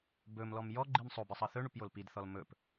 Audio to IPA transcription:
b ɵ m l ɔ m j ɔ ɡ͡ǃ i m sˤ o b ɨ sˤ ʌ θ ɵ ɳ u p j o l p i d θ ɔ l m ɵ p

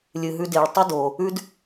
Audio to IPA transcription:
lʲ ɨ˩ ɦ ʉ˨ d e˩ ɭ tˤ ɵ˦ d o˩ | ʉ˦ d

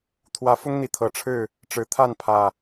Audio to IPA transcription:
t̪ʰ w ä˨˦ f ʊ˦ ŋ n̪ i˨˦ t̪ʰ ɤ˨˩ ʈ͡ʂʰ ɻ̩˥˨ | ʈ͡ʂ ɻ̩˨˩ t̪ʰ a˥˨ n pʰ ä˨˩

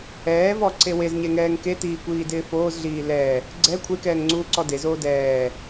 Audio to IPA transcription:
ɛː v ɔ ǀ e w e z ɲ e ŋ ɛː ŋ k e t iː kʷ iː d ɪː f oː z ɮ iː l ɛ | ɡ͡ǀ ɛ kʷʰ e k ɛː ŋ ŋ͡ǀ uː ǀ ɔ d e z oː d ɛː

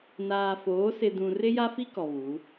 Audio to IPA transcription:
n aː˨ f oː˨˦ s ɪ˨ d ũ˨ r ɪ˦ j a˦ f i˦ k ɔ˨ β u˨˦

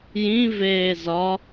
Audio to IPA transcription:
j ĩ v eː z ɒ

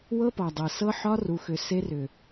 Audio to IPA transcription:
w ɤ˦ p ɒ˨ dˤ ɤ˨ s ɤ˦ ħ ɒ˦ r u˨ x ʏ˨ s e˦ r ʏ˨

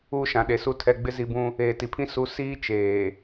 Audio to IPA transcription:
uː˦ ʃ ã˨ ɗ e˨ s u˦ tʰ ɛ˦ ɡ͡b ɪ˦ z i˦ b ũ˦ | eː˨ t i˨ pʰ ĩ˦ s u˦ s iː˦ t͡ʃ eː˨

